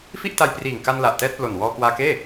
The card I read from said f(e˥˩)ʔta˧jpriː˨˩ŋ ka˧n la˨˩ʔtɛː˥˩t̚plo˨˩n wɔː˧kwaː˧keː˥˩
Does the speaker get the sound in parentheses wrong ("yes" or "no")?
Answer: yes